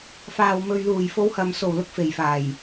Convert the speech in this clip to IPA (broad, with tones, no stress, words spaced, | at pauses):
faː˨wmɵ˨ɥluː˨˩j fo˨˧whɐ˨m so˨˩wlʊ˨k̚ fe˨˩jfaː˨˩j